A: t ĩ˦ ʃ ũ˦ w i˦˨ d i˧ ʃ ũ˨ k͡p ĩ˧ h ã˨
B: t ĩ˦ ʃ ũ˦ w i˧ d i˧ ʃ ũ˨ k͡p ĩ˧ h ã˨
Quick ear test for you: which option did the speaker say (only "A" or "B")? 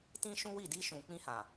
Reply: A